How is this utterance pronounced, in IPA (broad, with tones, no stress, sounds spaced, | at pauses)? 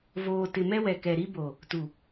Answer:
v oː˨ t ɪ˨ m ɛ˦ w ɛ˨ k ɛ˨ ɾ i˦ b o˨ | t u˨